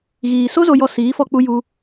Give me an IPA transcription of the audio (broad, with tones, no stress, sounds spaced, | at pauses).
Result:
ɣ iː˨ s o˧ z o˨ j ɔ˨ s iː˨˦ f ɔ˧ k͡p u˧ j u˧